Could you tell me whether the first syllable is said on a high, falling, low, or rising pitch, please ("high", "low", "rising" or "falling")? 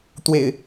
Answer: low